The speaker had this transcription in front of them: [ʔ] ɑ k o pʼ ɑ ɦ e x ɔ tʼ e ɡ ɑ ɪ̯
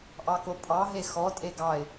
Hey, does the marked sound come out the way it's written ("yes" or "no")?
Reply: yes